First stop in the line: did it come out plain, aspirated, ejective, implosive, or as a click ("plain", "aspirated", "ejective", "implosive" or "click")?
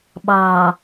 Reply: implosive